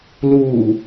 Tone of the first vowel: low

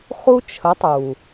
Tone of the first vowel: high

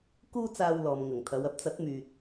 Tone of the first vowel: high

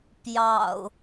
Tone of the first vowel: low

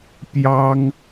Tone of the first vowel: high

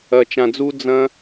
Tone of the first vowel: low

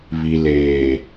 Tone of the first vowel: low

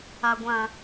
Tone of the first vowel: low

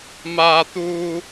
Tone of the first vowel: high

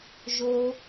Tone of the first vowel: high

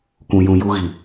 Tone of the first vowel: low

